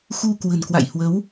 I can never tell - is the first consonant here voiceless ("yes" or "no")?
yes